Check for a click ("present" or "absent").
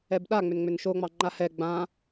present